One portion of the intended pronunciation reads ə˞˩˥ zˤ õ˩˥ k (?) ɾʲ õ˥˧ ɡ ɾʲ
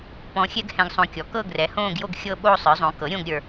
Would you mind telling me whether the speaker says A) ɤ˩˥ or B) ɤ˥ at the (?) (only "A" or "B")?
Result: A